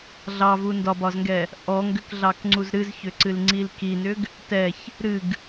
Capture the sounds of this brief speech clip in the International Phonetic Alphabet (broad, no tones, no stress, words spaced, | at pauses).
ɮɑvu ndɒbɒzŋɡɛ | ʔɔ ŋɡʏkɮɑkŋ͡ǀuz ɾɨzçʏǀɨlŋ͡ǀil kinʏɡ | tɛç | ɾɨɡ